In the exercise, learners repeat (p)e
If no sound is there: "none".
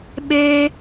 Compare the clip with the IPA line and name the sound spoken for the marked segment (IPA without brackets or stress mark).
ɓ